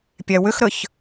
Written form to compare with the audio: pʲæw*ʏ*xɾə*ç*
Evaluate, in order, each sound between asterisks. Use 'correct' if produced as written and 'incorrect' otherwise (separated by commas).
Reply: correct, correct